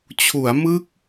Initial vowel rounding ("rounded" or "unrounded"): rounded